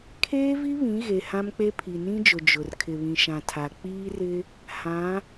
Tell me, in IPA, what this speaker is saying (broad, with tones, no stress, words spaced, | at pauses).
kʰeː˦vi˦βĩ˨˦ɣe˨ hã˦mk͡pe˦ pʰi˨nĩ˦d͡ʒʊ˨ d͡ʒʊ˨r kʰɪ˨βĩ˨ʃã˨ tʰa˨ k͡piː˦rɪ˦ | hã˨˦